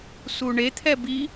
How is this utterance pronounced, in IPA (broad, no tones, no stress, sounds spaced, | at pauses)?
s u ɳ e t̪ʰ ɛ b i